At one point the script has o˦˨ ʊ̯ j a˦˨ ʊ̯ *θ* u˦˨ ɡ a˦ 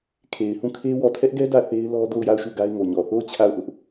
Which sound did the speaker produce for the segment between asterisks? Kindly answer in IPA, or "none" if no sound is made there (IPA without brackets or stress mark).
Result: ʃ